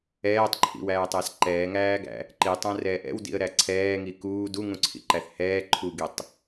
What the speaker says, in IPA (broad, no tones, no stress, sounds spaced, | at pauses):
ɛː tˤ ǃʰ ḭ w æː tˤ æ s ǃ ɛː ŋ æː ɡ æ̰ | ǃ i tˤ æ̃ r ɛː ʔ ɛ̰ w d ḭ ə̯ ɾ æ ǀʰ ɛː ŋ i k uː d u ŋ ũ ǀʰ ḭ ǃ æ θ h ɛː ǃʰ u ɡ i tˤ